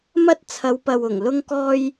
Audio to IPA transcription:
m ɐ˥ t̚ t͡sʰ ɐ˨˧ w p ɐ˨ w ʊ˨˩ ŋ l ʊ˥ ŋ k ɔː˥ j

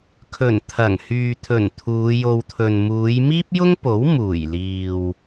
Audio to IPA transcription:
kʰ ɵ˨˩ n t̪ʰ ɐ˨˩ ŋ h yː˨ t̪ʰ ɵ˨˩ n t̪ʰ uː˨˧ j o˧ w t̪ʰ ɵ˨ n m uː˨˧ j m iː˥ p̚ j ʊ˥ ŋ p o˨˥ w m uː˨˩ j l iː˨ w

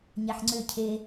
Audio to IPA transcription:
ɲ æ ħ ŋ͡ǀ ʏ cʰ e

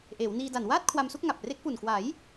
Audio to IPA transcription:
ʔ eː˩˦ w n iː˧ d a˨˩ n w aː˥˩ t̚ kʰ w a˧ m s u˥˩ k̚ ŋ a˨˩ p̚ r e˦˥ k̚ p u˨˩ n k w a˩˦ j

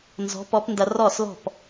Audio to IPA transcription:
n z ɔ̤˨˥ p ɔ˨˥ p n d ɐ˧ r ɔ˧˩ s l ɔ̤˧˩ p

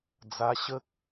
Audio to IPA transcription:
d͡z a˧ ɕ ə˦ k̚

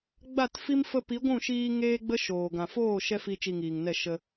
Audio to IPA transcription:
ɡ͡b a˦˨ t f i˦ m f ə˧ p i˨˦ ɡʷ ũ˦˨ ʃ iː˧ ŋ eː˦ ɡ͡b ə˦ ʃ oː˨ ɡ ã˨ f oː˦˨ ʃ ɛ˦ f i˧ t͡ʃ i˧ ŋ iː˨ ŋ n ɛ˦˨ ʃ ə˧

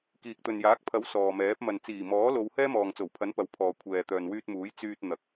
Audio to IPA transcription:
k iː˨ k̚ t̪ ɵ˨ n j aː˨˥ k̚ pʰ ɐ˨˥ w s ɔː˨ m ɛː˨˥ p̚ m ɐ˨ n t͡s iː˨˩ m ɔː˨˥ l o˨˧ w h ɛː˥ m ɔː˨ ŋ t͡s o˨˩ w pʰ ɐ˨˥ n p ɐ˨˥ w pʰ ɔː˨ kʷʰ ɛː˨ t̪ œː˨ n w yː˧ t̚ m uː˨˥ j t͡s yː˧ t̚ n̪ ɐ˨ k̚

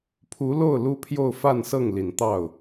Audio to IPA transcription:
pʰ u˧˥ l o˥˩ ʊ̯ l u˥ pʰ j o˥˧ ʊ̯ f a˥˧ n s ɤ˥˩ ŋ l i˨˩ n t̪ ɑ˥˩ ʊ̯

